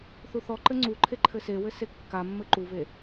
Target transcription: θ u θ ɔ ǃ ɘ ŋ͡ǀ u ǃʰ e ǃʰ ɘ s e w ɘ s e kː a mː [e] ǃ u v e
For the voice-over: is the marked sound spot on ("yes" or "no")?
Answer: no